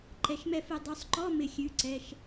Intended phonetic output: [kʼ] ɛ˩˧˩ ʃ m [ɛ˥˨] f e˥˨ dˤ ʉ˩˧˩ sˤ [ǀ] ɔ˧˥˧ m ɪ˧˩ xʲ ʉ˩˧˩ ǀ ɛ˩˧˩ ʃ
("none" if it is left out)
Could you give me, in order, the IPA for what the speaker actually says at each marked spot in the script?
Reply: ǃ, ɛ˥˨, ǃ

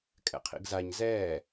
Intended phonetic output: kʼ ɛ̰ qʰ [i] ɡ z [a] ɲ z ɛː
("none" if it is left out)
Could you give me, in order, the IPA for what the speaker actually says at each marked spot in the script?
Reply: ḭ, a

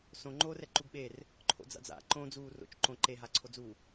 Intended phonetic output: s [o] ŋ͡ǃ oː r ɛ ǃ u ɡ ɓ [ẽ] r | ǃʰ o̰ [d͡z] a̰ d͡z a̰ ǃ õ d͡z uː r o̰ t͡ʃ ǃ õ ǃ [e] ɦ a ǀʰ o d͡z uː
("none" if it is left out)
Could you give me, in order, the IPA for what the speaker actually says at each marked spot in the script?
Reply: õ, e, d͡z, e

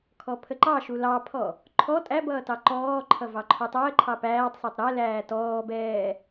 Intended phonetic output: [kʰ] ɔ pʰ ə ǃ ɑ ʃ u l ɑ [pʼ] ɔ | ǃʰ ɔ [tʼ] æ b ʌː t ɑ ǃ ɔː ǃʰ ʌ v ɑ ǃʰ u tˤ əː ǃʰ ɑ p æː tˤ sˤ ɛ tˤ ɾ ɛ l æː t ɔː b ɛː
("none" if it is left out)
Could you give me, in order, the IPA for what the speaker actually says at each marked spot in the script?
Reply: kʰ, pʰ, tʼ

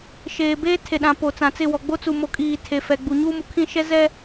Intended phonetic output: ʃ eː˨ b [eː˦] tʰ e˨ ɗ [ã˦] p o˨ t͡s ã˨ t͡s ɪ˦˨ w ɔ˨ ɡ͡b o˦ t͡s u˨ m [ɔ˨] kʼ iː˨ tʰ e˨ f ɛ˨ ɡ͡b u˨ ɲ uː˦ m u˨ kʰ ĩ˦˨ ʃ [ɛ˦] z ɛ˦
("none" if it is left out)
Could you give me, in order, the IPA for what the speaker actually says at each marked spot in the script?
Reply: eː˦, ã˨, o˨, ɛ˦

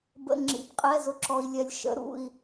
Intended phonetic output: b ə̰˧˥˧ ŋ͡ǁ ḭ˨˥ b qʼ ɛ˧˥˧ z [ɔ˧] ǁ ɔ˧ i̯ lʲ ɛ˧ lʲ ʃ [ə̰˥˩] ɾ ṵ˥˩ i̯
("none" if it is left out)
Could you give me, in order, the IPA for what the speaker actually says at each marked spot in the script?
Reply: ʊ˧, ə̰˧˥˧

